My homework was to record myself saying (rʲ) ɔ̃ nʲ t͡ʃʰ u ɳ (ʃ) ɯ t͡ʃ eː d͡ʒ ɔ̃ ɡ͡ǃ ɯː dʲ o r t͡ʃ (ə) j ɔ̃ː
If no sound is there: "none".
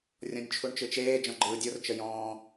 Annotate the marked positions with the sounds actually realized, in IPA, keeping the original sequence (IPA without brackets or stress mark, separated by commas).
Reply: rʲ, t͡ʃ, ə